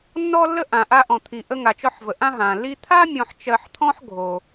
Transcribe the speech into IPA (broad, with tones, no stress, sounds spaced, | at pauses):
nː ɔ˧ lː ə˧ ʔ ã˩ ʔ a˧ ʔ ɔ̃˩ t̪ʰ i˩ ʔ ə˧ ŋ a˩ t͡ʃ ɔ˧ ħ v ə˩ ʔ ã˧ ɦ ã˩ lː i˧ t̪ʰ a˥ mʲ ɔ̃˧ ħ t͡ʃ ɜ˧ ħ t̪ʰ ɔ̃˥ ħ ɡʱ o˩